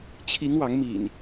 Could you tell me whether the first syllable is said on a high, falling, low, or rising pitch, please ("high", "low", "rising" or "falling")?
rising